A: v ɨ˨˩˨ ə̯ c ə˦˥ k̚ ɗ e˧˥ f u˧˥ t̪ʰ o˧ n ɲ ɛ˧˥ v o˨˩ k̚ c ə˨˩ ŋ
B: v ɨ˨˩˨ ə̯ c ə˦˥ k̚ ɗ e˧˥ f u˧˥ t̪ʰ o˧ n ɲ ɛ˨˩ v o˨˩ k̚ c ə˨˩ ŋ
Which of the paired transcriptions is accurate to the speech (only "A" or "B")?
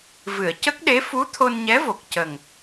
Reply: A